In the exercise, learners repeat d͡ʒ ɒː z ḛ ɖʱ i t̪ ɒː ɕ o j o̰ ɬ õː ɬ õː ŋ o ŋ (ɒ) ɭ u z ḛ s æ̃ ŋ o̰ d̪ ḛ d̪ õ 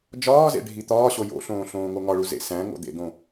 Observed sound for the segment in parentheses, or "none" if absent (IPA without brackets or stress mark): ɒ